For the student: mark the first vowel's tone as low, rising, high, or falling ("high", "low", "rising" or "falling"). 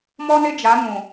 high